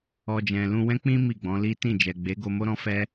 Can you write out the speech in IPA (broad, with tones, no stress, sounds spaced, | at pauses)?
ɔ˧ d͡ʒ ɛ̃˨ l ũ˧ w ɛ̃˦ k͡p ĩ˦ m i˦˨ ɡ͡b ɔ̃˨˦ l i˦ t ĩ˦˨ d͡ʒ ɛ˨ ɡ͡b e˨˦ ɡ o˧ m o˦ ɾ ɔ̃˦ f ɛ˦